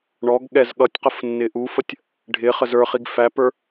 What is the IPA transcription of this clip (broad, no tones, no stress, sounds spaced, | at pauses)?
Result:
ɳ ɔ ɡ ɠ ɛ z ɠ ʌ tʲ q ə f nː ɪ ʔ u f ə tʲ | ɖʱ ɪ χ ə z ə˞ χ i ɡ f æ p ə˞